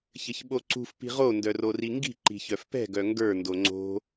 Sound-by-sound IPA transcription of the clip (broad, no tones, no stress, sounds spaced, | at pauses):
ç ɘ ç ɓ o ǀ ṳ f p i̤ ʁ o n d œ r o r i ŋ ɡ i̤ ǃ i̤ ç œ f p ɛ̤ ɡ œ ŋ ɡ ə˞ n d o ŋ͡ǀ o̤